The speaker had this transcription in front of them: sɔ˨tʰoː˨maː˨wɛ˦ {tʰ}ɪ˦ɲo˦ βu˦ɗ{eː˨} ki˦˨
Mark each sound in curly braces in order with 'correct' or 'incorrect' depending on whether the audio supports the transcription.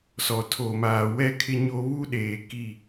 incorrect: kʰ, correct

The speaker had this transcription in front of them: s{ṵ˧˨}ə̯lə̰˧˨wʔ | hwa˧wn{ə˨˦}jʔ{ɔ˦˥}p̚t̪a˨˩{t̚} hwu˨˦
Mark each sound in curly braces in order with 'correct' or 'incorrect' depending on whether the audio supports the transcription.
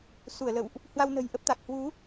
incorrect: u˧˩, incorrect: ə̤˨˩, incorrect: ə˦˥, incorrect: k̚

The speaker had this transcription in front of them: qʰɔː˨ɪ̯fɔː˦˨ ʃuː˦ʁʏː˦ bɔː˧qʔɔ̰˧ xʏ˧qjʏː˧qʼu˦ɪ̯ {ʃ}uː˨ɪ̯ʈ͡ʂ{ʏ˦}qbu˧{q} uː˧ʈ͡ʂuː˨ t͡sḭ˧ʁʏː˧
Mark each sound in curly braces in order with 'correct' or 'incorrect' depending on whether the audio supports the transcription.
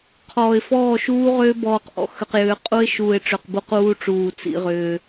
correct, incorrect: ʏ˨, correct

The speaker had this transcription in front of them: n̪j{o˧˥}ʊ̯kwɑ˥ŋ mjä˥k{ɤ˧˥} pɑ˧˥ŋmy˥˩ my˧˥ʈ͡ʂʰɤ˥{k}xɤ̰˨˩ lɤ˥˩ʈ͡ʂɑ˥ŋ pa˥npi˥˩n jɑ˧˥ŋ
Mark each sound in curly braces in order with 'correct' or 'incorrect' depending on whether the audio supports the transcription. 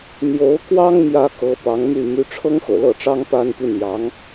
correct, correct, incorrect: ŋ

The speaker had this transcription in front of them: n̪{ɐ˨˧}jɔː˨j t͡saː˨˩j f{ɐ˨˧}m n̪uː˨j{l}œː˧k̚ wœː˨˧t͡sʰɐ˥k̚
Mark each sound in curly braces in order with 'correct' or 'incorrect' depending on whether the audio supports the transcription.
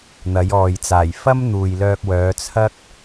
correct, incorrect: ɐ˥, correct

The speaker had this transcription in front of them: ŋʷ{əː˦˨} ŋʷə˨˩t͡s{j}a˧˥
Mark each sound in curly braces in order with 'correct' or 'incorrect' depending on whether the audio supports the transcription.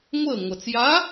correct, correct

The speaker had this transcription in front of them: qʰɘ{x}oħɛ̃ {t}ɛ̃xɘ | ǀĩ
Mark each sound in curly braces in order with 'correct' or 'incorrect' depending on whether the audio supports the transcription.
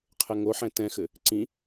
incorrect: ŋ, correct

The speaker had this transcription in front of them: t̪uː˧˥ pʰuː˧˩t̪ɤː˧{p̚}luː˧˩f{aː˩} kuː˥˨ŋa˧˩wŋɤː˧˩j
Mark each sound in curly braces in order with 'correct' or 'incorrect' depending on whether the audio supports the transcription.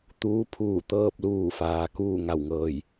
correct, correct

